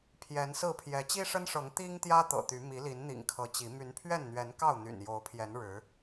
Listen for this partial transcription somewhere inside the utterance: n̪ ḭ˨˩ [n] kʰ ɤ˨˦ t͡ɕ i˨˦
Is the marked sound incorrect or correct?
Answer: incorrect